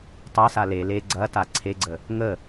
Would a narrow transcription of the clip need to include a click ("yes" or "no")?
yes